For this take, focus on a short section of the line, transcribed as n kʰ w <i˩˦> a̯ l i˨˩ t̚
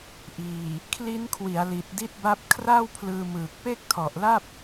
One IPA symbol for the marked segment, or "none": i˩˦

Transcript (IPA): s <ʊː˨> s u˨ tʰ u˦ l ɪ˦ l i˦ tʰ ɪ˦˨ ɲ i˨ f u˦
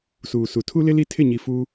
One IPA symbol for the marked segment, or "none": uː˨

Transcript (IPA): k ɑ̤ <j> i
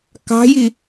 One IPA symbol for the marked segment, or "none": j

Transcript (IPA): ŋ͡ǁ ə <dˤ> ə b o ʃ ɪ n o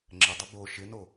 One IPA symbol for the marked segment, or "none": dˤ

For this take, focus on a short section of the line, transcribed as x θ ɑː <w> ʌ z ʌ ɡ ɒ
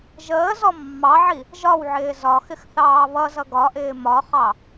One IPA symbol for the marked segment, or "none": β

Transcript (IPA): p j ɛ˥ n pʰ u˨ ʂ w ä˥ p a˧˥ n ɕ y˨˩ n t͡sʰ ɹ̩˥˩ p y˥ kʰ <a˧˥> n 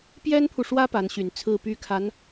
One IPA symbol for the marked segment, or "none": a˧˥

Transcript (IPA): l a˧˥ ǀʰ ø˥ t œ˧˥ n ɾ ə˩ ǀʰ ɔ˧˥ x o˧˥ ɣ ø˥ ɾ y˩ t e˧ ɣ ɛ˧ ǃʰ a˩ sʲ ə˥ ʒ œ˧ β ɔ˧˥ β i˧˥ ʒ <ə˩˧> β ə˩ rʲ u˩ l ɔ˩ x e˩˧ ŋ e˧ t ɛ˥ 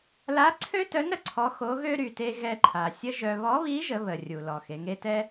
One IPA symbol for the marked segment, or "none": ə˩˧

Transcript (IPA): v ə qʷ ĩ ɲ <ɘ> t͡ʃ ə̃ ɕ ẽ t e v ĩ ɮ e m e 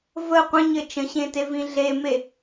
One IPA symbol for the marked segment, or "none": ɘ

